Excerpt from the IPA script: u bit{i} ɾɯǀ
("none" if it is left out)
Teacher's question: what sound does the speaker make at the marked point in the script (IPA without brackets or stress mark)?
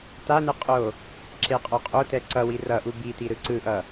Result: i